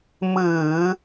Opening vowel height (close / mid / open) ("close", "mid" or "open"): close